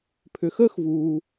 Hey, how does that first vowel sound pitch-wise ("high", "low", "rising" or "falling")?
low